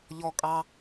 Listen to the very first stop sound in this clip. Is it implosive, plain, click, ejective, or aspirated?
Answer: ejective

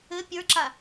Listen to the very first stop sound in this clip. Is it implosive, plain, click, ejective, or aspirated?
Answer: plain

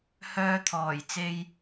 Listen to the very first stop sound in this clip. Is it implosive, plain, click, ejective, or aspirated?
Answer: aspirated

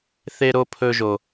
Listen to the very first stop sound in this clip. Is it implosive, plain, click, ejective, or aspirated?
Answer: aspirated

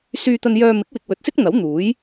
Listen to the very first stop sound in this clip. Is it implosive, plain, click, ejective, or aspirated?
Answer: plain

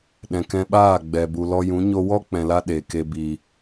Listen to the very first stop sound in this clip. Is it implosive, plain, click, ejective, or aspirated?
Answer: implosive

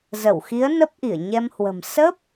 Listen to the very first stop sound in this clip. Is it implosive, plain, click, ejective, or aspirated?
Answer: plain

